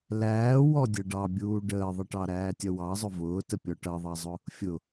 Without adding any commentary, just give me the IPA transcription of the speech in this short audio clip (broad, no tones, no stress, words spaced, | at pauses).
læː wɔdʲʌɖɑbʲuː ɖəːðˤəʈɑ ɾæːtʲʌwɑzˤʊ vʊːtə pʲɔʈʌðˤɑzˤʊ | fʲʊ